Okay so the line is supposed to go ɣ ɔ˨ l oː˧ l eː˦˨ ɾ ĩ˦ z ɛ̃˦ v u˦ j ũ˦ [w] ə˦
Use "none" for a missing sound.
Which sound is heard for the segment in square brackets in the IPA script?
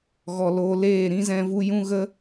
ɣ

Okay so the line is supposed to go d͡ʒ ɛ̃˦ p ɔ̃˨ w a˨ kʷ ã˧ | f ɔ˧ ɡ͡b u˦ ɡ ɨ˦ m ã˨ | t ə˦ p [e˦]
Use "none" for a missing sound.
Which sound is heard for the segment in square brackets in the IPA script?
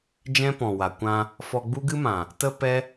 ɛ˦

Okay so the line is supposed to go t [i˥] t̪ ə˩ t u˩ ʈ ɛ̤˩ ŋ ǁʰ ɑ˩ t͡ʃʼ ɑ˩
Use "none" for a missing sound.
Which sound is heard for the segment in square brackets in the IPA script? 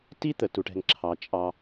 i˥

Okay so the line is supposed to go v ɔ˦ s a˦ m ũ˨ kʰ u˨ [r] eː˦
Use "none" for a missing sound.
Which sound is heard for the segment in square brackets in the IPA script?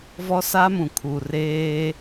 r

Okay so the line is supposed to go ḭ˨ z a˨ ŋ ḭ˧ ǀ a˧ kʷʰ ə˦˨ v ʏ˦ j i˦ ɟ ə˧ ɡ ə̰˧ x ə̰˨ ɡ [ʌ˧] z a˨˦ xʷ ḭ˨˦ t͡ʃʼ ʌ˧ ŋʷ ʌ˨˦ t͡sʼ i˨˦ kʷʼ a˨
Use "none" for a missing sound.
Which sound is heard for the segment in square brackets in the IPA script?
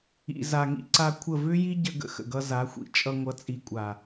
ʌ˧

